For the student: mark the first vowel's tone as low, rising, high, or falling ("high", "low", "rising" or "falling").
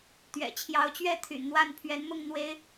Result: low